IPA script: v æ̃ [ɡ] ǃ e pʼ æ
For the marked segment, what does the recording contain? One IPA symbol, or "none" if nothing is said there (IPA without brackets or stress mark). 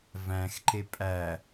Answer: x